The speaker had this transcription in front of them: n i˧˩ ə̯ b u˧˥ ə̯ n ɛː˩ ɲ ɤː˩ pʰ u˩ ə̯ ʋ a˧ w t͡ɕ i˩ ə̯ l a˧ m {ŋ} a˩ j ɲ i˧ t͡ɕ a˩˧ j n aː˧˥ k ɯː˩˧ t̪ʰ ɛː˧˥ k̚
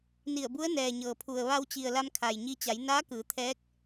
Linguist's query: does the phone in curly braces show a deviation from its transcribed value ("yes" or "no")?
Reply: yes